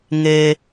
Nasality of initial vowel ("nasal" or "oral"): oral